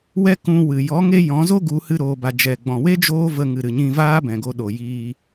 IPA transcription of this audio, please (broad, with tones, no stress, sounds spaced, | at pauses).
w ɛ˦ k ũ˧ w ɨ˨ j ɔ˨˦ ŋ e˦ j ɔ̃˨˦ z o˦ ɡ u˨˦ h ɨ˧ ɾ oː˨ b a˨ d͡ʒ ɛ˨ ɡ͡b ɔ̃˨ w e˦ d͡ʒ oː˦ v ə˧ ŋ ɨ˨ ɾ ɨ˨ ɲ ĩ˧ v aː˦ b ɛ̃˨ ɡ o˧ ɗ o˨ j iː˧